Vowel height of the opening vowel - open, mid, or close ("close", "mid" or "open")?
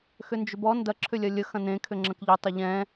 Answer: close